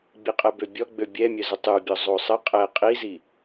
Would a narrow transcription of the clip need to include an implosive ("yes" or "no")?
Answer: no